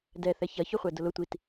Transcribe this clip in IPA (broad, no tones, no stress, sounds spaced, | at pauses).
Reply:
d ɛ θ ɛ ç ɐ ç ʊ χʷ ɛ d ʊ l ʊ tʷ i t